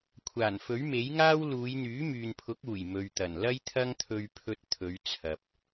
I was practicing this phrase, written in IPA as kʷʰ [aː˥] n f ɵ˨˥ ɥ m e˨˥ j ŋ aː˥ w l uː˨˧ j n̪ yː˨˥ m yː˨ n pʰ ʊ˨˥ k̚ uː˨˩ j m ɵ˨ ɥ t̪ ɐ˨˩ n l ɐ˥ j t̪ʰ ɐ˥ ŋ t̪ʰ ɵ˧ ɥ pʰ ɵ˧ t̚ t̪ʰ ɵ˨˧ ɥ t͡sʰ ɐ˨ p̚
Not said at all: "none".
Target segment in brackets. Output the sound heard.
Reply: aː˨˩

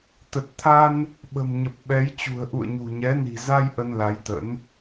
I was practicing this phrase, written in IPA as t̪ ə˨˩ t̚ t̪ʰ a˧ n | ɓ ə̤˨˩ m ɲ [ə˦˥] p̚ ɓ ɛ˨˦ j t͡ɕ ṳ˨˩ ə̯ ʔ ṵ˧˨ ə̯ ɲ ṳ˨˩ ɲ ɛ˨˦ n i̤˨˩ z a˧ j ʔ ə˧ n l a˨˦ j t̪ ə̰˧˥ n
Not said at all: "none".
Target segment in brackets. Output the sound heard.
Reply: ə˨˩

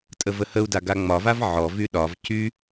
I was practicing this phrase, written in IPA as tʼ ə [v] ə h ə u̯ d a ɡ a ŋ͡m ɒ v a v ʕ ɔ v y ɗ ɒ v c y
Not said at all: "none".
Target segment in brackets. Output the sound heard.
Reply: v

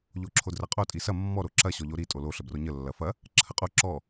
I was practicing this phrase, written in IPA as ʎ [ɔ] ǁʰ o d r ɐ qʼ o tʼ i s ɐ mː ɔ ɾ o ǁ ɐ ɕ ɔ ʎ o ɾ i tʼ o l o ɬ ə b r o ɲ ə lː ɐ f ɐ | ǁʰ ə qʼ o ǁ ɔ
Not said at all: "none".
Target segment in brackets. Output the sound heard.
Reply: o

